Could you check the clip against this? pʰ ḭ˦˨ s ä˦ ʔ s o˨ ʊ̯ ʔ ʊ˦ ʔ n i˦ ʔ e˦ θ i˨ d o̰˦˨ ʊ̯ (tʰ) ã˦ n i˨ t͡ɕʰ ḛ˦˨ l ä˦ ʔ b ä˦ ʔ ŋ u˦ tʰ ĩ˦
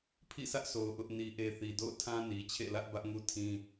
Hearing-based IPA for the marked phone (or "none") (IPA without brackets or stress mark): tʰ